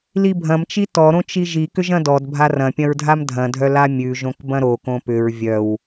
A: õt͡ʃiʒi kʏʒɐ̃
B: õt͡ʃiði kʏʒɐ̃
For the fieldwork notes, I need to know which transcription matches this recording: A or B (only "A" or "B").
A